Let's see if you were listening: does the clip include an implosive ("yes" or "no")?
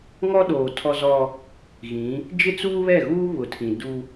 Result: yes